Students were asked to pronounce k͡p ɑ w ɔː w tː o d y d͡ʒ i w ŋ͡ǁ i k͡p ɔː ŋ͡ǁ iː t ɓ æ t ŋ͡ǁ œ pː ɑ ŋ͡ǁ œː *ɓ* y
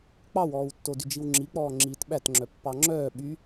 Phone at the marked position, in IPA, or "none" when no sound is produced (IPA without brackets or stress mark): ɓ